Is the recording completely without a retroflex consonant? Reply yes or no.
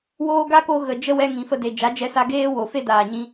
yes